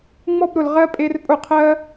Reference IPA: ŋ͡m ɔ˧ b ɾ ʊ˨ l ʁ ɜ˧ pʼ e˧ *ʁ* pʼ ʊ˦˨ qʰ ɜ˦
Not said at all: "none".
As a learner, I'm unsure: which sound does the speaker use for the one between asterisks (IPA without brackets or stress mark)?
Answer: r